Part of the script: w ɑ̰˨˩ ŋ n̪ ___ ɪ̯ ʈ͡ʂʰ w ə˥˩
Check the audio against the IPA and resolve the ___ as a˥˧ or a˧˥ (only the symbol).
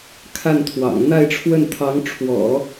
a˥˧